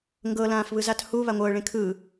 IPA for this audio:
ŋ ɡ ɤ l ãː f β ɯ z a t h u β a ŋʷ ɤː ɭ ẽ kʰ ɯː

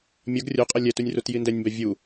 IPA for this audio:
mʲ ʌ ɡ rʲ o qʼ ʌ lʲ ɛ t u nʲ r u t j i n d ɛ nʲ m b ɛ vʲ u

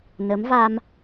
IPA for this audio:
n ə˧˥ m v a˧ m

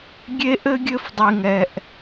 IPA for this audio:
ɡʲ e˥ ʔ ɘ˥ ɡʲ ɘ˥ f dˤ i˥ ŋ ɛ˥ ʔ

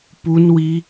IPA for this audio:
p u n w i

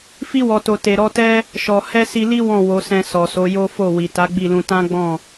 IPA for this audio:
f i˧ w ɔ˨ t o˨ t e˨ ɾ ɔ˧ t ɛ˦ | ʃ ɔ˨ h ɛ˧ s i˧ l i˦ w ɔ̃˦˨ w o˨˦ s ɛ̃˧ s ɔ˨ s o˨˦ j o˦ f o˦˨ w i˨ t a˨˦ ɡ͡b i˦˨ l ũ˧ t ã˦ ɡ͡b ɔ̃˦˨

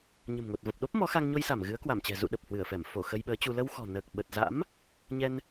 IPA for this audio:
ɲ ə̤˨˩ m ŋ o˨˩ t̚ v ə˨˩ p̚ ɗ o˦˥ p̚ m ɔ˨˦ x a˧ ŋ ɲ o˧ j s a˧˩ m ɣ ɨ˨˦ ə̯ k w a˧˩ m t͡ɕ ɛ̤˨˩ z ṵ˧˨ ɗ ə˨˩ p̚ h w ɨ˧˩ ə̯ f ɛ˧˩ m f o˧˩ x ə˧ j ɓ əː˨˦ t͡ɕ u˧ l ə˧ w x ɔ̤˨˩ n əː˨˩ k̚ ɓ ə˨˩ t̚ z a̰˧˥ m | ɲ ɛ˧ n

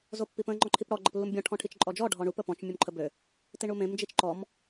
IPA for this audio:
z o pː i p ə̃ ŋ͡ǃ ɔ̃ ǃʰ i p ɽ ɔ ɡ͡ǃ ə p lː u m bʲ ɔ̃ ʈʰ ɔ̃ ʈʰ i t͡ʃ ǃʼ ɔ d͡ʒ ɔ ɖʱ ɔ ɳ u p ə p ɔ̃ t͡ʃ mʲ u m ǃʰ ə b ø | t i ɳ u m ẽ m d͡ʒ i t͡ʃ ǃ ɔ m

